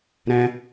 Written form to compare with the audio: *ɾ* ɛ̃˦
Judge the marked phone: correct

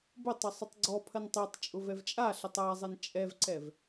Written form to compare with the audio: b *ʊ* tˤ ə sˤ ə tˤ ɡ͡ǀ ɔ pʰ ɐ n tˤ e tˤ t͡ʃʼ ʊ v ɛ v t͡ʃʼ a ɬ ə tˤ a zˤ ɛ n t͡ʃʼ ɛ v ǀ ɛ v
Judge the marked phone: correct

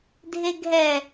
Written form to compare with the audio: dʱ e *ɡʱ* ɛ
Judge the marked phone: correct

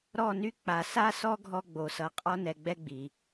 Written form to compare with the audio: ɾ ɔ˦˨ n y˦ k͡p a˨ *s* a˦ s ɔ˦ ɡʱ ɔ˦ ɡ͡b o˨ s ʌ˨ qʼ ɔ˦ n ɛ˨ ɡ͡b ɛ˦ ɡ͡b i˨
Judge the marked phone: correct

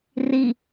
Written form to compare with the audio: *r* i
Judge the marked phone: correct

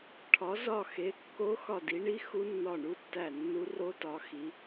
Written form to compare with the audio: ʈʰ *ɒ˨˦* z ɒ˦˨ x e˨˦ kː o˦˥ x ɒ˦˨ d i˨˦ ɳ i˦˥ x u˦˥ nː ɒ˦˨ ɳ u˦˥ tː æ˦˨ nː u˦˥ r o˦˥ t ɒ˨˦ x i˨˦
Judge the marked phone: correct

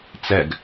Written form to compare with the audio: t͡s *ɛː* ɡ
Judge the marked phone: incorrect: ɛ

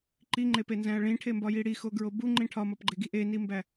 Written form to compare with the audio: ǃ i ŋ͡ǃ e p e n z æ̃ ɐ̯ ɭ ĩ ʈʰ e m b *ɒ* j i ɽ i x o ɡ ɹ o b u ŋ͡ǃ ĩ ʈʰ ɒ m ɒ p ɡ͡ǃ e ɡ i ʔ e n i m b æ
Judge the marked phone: correct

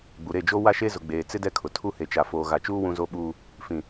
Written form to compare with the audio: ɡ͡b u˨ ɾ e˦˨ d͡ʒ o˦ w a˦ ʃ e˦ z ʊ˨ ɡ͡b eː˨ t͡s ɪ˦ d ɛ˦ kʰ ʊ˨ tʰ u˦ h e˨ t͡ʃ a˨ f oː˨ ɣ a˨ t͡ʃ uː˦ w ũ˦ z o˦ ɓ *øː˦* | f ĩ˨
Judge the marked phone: incorrect: uː˦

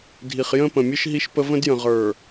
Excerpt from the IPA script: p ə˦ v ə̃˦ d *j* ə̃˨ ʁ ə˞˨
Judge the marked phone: correct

